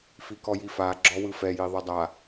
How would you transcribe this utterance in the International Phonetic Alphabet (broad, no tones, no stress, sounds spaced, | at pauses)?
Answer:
f i k ɔ j i f a ɡ͡ǁ ɔ w ɯ f ɛ j i ðˤ ɛ dˤ a